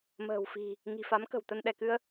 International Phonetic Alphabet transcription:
m ə̤ː˨˩ w f i̤˨˩ | ŋ i̤˨˩ f a˨˦ m k ə̤˨˩ w t̪ ə˧ n ɗ ɛ˧˩ k ɨ˧ ə̯

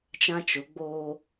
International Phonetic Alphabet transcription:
t͡ʃ ã˦ t͡ʃ ʊ˨˦ ɡ͡b oː˦

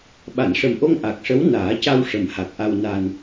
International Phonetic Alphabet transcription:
ɓ a˨˩˨ n ʂ ə˨˩ m ʔ o˧ ŋ ʔ a˨˩ k̚ ʂ ə˧˥ w n aː˨˩˦ c a˧ w ʂ ə˨˩ m h a˨˩ k̚ ʔ a˧ w n a˧ n

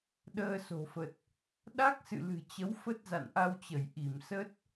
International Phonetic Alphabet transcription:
ɗ əː˧ s o̤˨˩ f ə˨˩ t̚ | ɗ a˦˥ k̚ s ɨ̰˧˨ l ɨ̤˨˩ t͡ɕ ə˨˦ w f ə˦˥ t̚ z a̰˧˨ n ʔ a˧ w t͡ɕ ə˧˩ j ʔ i˧˩ m s ə˦˥ t̚

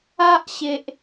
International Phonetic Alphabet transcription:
a˦ ʔ ɕ e˨ ʔ

